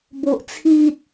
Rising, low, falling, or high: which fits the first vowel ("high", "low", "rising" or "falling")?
low